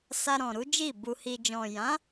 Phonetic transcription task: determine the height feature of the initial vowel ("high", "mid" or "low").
low